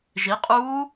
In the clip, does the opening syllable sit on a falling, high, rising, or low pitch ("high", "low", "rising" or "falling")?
rising